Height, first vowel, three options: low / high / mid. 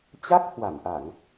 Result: low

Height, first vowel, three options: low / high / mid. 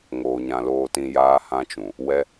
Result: mid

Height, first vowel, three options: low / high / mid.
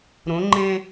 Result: mid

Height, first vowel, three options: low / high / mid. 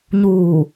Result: high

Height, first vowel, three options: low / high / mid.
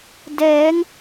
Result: mid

